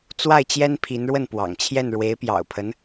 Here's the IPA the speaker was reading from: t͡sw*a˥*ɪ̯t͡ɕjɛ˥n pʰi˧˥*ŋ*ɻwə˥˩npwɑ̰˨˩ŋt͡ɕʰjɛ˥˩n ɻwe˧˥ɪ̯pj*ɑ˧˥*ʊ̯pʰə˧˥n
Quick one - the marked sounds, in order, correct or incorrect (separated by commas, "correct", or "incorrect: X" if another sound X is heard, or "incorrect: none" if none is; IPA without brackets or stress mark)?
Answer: incorrect: a˥˩, incorrect: n, incorrect: ɑ̰˨˩